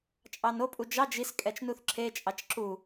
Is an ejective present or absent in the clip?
present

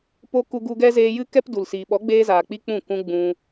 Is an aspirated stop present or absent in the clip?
absent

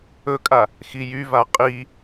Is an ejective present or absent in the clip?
present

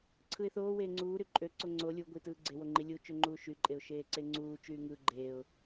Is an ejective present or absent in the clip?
present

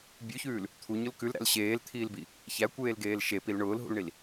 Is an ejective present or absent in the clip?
absent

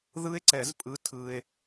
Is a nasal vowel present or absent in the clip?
absent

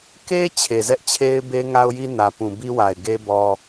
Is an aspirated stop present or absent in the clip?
present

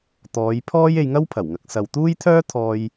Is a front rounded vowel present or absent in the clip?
present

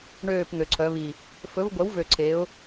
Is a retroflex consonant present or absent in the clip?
present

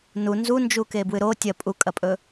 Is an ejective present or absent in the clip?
present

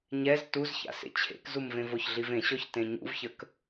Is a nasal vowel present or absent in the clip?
present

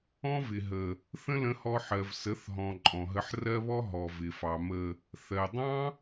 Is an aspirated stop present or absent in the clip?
absent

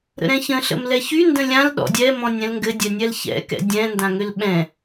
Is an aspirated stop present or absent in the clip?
absent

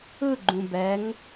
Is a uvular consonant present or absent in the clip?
absent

